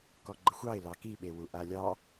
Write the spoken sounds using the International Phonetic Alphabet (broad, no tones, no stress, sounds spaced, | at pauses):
k ɔ ɡ͡ǃ ə xʷ ɑ ɪ̯ l ɑ k i ɓ e w u ʔ a lʲ ɑ